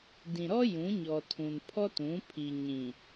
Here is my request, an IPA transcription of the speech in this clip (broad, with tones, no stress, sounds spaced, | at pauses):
d ĩ˨ ɾ ɔ˦ j ũ˨˦ ɲ ɔ˨ tʰ ũ˨ n pʰ ɔ˦ t ũ˨˦ pʰ i˨ ɲ ĩ˨